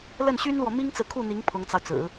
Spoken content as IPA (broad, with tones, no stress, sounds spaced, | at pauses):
l ə˥˩ n ɕ y˥ n l w ɔ˨ m i˥ ŋ t͡s ɹ̩˨ kʰ u˥˩ n̪ i˧˥ ŋ pʰ ʊ˧˥ ŋ t͡s ɑ˧ ʊ̯ t͡s ɹ̩˨˩˦